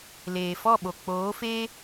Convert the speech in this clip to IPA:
l eː˨ f ɔ˦˨ ɓ o˨ k͡p oː˨˦ f eː˦

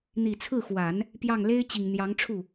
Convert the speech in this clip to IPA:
n̪ i˨˩ t͡sʰ ɹ̩˥˩ x w a˨˩˦ n | p j ɑ˥˩ ŋ l e˥ ɪ̯ t͡ɕ i˨˩ ŋ n̪ j ɑ˧˥ ŋ ʈ͡ʂʰ u˥˩

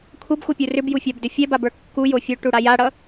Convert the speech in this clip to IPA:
kʷʰ ʌ b xʷ ʌ pʲ u r ʏ b j u fʲ a b d ʏ fʲ ɛ b a b ə˞ kː u j o fʲ o ʈ u ɽ a j a ɽ ʌ

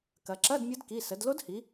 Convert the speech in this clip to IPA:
k ɐ˩˧ ǁ ɐ˧˥˧ d mʲ ʌ˧˥ d k i˩˧˩ s ə˩˧ d l o˧˥ d h i˩˧

